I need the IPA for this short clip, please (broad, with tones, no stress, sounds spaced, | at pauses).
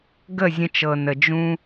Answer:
ɡ ə˦˨ zʲ ə̃˧ t͡ʃ ɤ˨ n ə˨ d͡ʒ ũ˧